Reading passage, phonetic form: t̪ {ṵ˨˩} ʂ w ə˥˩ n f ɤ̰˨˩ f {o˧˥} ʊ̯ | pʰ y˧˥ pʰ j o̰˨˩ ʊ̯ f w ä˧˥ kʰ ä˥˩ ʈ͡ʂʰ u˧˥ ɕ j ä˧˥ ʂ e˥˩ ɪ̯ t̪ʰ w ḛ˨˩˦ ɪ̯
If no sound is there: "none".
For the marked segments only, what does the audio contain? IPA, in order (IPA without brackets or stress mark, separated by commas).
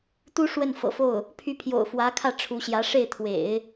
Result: u˥, o˥˩